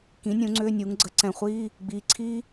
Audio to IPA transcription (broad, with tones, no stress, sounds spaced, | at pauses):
k ĩ˩˥ nʲ ũ˩˥ ŋ͡ǀ ʏː˧˥˧ nʲ u˩˥ ŋ ɡ͡ǀ ə˩˥ ǀ ɛ̃˨˩ χʷ iː˧˥˧ | ɡ͡b iː˩˥ ǀʰ iː˦˥